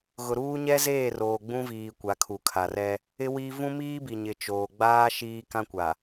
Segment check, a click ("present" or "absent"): absent